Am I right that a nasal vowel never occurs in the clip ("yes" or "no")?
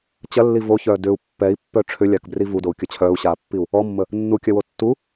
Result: yes